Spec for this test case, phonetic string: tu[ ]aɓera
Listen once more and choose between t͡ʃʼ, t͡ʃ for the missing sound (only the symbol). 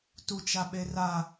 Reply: t͡ʃ